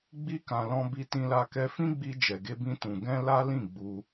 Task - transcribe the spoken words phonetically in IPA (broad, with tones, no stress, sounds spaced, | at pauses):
ɡ͡b i˦ k ã˧ l ɔ̃˧ b i˧ t ĩ˧ l a˧ k ɛ˧ f ĩ˦ ɡ͡b i˧ d͡ʒ ɛ˨ ɡ e˧ b ĩ˧ t ũ˨ ɡ ɛ̃˧ l a˦ l ĩ˦˨ ɡ͡b u˧